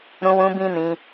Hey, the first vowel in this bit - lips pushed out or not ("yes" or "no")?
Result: yes